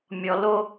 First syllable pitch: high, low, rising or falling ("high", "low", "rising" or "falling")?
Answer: low